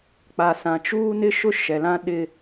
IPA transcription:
k͡p a˨ s ã˨ t͡ʃ uː˦ n ɪ˦ ʃ ʊ˦ ʃ ɛ˨ l ã˦ ɗ ɪ˦

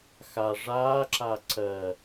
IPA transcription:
x a ʐ aː ǁ a ǀ ɜ

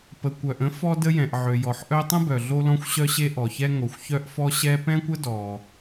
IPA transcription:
p ə˩ kʷ œ˩ ʔ ə̃˥ f ɔ˥ d ə˥ j ɛ̃˩ ʔ ʕ ø˩ j ɔ˩ ħ ʔ œ˥ tˤ ə̃˥ b œ˩ ɮ o˥ l ɔ̃˥ xʷ ɕ œ˥ ɕ e˥ ʔ ɔ˩ ç ɛ˥ ŋ o˩ xʷ ç œ˥ ʔ f ɔ˥ ɕ ɛ˥ p ɛ̃˥ kʷ ə˥ d ɔ˩

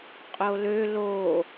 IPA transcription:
qʼ o l ø l o

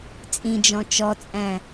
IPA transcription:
t͡sʼ ĩ d͡ʒ ɔ̃ t͡ʃ ɔ t͡sʼ æ̃

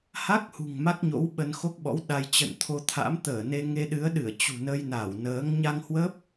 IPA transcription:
h a˦˥ k̚ h ṳ˨˩ ŋ m a˦˥ k̚ ɲ o̰˧˥ w ɓ ə˧ n x o˦˥ k̚ ɓ ɔ̰˧˥ w ɗ a˧ j t͡ɕ ə̰˧˨ n t̪ʰ o˧ t̪ʰ a̰˧˥ m t̪ əː˧˩ n e˧ ŋ e˧ ɗ ɨ˨˦ ə̯ ɗ ɨ˧˩ ə̯ t͡ɕ ṳ˨˩ n ə˧ j n a˧˩ w n əː˨˦ ŋ ɲ a˧ ŋ h w ə˦˥ p̚

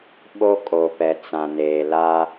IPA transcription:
ɓ o˦ kʼ o˨ p ɛ˨ t͡s ã˨ n eː˨ l a˦

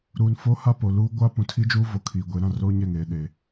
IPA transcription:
ɾ uː˨ n f oː˦ h a˦ p o˨ l uː˦ ɡʷ a˦ p ũ˨ tʰ i˦ d͡ʒ uː˦ v o˨ kʰ iː˨ ɡʷ e˨˦ ɾ ã˦˨ r oː˦ ɲ ɛ˦˨ ŋ eː˨ ɗ e˨

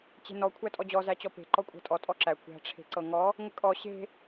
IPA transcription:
t͡ɕ e̤ n ɔ kʷʰ æ tʼ ɔ d͡ʑ ɔ z æ t͡ɕ ɔ p e̤ ǃ ɔ kʷʼ æ̤ tʼ ɔ tʼ ɔ ǁ æ kʷ æ̤ ʈ͡ʂʰ e̤ ǀ ɤ ŋ ɔ | ŋʷ ə kʼ ɔ ɕ e̤

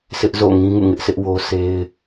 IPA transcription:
sʰ ɪ˦ ʔ z o̰˦˨ ŋ ĩ˦ ŋ ṵ˦˨ ŋ ɪ˦ ʔ sʰ ɪ˦ ʔ w o˦ sʰ e˦ ɪ̯

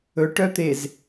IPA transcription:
ɵ ʈ œ t̪ e z

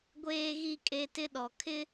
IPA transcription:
ɡʷ eː˦ ɣ i˦ kʼ e˦ t ɪ˦ ɗ ɔ˨ kʰ ɪ˦

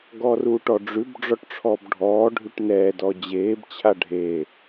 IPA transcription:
ɡ ɔ r uː ʈ ɔ ɖ͡ʐ ʉ b ɖ͡ʐ ɔ ʈ ʈ͡ʂʰ ɔ b ɖʱ ɔː ɖʱ ʉ ʈ n ɛː d ɔ d͡ʑ eː b t͡ɕʰ a ɖʱ e

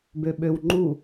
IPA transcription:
b ø ɓ ø w ŋ͡ǃ u

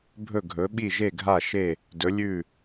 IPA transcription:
bʱ ɵ˧˩ ɡʱ ɵ˩˧ ɓ i˧˩ ʒ e˧˩ ɡʱ a˧˩ ʃ e˧˩ | d ɵ˩˧ lʲ ʉ˧˩

